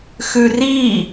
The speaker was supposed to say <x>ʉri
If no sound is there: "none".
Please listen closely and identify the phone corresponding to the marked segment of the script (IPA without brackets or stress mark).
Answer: x